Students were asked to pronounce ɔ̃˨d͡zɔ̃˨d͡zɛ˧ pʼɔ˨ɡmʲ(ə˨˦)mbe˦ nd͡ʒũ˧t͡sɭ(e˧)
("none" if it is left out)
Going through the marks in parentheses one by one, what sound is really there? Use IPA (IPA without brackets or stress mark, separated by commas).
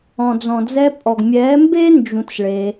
ɛ˨˦, e˧